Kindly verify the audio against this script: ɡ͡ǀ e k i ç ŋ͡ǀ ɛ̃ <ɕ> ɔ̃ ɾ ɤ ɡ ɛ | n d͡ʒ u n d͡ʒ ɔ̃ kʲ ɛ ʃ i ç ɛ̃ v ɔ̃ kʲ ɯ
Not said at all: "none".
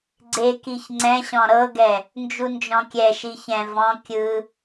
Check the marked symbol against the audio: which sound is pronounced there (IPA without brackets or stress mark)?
ɕ